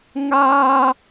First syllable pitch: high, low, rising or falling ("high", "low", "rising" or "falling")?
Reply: high